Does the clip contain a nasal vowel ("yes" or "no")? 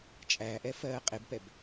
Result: no